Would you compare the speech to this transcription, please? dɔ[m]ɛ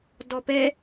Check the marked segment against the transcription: incorrect: p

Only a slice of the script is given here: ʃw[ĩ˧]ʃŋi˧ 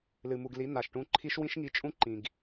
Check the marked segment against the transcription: incorrect: ĩ˦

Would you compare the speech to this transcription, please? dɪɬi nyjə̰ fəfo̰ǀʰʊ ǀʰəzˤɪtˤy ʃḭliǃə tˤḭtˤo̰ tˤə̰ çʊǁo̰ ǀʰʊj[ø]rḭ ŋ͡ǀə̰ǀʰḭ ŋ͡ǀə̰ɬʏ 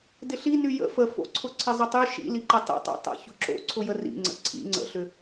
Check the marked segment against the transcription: incorrect: ə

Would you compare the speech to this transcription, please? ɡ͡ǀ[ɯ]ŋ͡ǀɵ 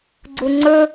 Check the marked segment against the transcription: incorrect: u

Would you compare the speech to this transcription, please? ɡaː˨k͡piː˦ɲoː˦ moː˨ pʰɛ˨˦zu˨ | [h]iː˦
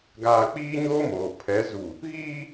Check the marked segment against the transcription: incorrect: ɣ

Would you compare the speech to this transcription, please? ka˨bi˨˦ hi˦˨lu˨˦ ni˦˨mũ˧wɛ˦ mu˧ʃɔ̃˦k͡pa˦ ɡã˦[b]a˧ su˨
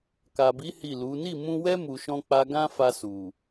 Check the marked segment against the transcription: incorrect: f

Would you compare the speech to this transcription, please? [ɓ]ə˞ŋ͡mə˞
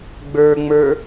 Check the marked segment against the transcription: incorrect: ɡ͡b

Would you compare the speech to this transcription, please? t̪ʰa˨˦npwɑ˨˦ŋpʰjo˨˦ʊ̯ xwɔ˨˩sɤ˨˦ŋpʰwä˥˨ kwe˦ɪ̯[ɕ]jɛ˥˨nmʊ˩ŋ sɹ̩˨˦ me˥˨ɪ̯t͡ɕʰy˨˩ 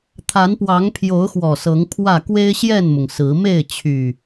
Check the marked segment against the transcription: correct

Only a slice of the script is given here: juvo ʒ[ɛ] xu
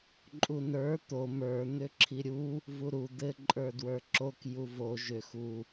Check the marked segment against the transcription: incorrect: ʏ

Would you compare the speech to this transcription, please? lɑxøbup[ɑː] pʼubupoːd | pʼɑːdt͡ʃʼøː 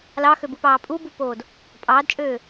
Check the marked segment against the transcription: correct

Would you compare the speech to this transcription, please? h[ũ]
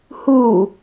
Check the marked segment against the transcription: incorrect: u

